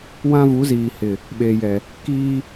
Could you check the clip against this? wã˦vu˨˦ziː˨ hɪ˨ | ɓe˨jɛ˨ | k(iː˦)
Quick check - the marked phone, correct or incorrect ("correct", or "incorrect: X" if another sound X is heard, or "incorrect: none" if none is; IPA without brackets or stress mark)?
correct